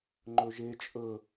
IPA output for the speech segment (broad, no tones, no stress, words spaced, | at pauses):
ŋ͡ǃɵʒe t͡ʃʼɵ